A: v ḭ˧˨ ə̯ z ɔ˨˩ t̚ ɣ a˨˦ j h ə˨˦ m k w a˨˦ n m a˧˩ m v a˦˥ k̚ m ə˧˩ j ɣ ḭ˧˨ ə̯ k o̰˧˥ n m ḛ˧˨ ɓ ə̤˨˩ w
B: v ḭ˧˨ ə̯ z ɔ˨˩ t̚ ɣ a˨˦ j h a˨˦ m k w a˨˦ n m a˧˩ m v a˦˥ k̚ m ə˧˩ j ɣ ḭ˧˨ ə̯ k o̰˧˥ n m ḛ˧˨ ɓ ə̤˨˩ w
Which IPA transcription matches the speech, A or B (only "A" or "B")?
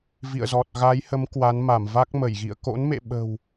A